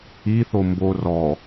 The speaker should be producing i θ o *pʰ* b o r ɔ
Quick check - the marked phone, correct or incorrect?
incorrect